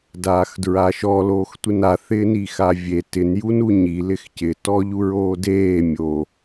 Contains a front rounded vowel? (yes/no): no